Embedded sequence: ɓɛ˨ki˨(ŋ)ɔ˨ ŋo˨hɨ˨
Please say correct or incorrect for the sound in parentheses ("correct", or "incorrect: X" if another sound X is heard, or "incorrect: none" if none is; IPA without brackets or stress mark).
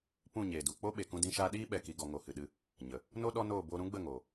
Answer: incorrect: ɡ